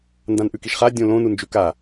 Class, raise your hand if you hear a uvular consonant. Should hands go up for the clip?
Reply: yes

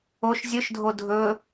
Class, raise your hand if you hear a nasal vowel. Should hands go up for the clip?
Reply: no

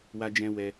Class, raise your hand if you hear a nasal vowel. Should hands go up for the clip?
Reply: yes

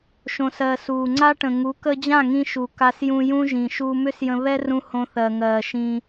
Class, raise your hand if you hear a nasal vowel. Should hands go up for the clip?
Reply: yes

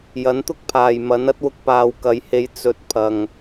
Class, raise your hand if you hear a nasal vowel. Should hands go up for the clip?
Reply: no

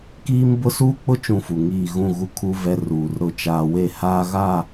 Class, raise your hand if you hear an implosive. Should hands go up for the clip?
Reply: no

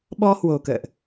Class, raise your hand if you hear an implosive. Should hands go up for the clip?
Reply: yes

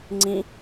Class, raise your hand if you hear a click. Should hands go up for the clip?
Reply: yes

